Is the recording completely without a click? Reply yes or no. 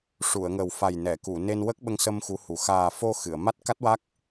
yes